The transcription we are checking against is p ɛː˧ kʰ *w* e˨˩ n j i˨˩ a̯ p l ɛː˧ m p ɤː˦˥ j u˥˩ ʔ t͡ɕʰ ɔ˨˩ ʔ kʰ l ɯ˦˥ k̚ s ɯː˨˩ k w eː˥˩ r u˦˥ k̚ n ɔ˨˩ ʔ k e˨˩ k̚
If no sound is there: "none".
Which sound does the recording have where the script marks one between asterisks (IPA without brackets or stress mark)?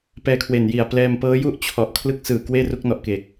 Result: w